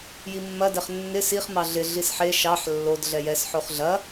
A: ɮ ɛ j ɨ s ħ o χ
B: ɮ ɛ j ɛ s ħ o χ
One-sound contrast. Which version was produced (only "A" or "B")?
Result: B